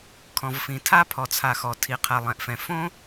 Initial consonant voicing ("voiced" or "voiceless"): voiceless